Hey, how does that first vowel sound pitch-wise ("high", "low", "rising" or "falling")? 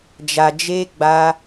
low